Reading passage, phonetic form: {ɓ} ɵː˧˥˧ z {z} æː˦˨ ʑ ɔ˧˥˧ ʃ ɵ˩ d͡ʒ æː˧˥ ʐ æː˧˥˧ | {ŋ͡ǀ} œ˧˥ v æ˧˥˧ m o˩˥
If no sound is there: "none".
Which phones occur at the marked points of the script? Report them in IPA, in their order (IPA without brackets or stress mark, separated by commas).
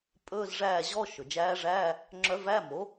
pʼ, ʐ, ŋ͡ǁ